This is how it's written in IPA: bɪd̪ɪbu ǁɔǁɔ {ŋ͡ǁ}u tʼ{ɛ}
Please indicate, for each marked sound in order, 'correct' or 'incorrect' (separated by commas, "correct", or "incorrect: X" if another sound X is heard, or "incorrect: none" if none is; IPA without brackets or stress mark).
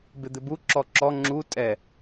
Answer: correct, correct